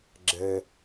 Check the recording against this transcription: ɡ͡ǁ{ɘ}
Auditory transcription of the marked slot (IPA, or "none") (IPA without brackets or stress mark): ɘ